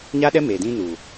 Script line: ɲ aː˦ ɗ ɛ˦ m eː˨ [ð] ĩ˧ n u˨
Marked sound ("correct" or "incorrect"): incorrect